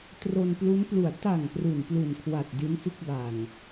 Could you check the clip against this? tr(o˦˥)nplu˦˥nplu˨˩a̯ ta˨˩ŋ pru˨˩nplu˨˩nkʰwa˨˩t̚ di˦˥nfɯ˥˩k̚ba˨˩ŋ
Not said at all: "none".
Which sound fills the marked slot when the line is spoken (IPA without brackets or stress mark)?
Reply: o˧